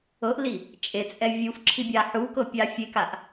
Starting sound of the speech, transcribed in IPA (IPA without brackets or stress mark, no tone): ɤ